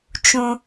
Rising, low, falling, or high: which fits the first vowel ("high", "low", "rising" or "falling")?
high